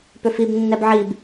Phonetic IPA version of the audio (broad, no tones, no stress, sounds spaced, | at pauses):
p ʏ f i b nː ɛ b ʕ i b